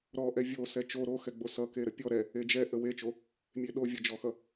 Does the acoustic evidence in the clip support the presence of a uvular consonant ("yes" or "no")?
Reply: no